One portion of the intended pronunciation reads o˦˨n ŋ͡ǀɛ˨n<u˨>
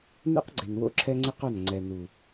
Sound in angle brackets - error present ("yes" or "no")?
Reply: no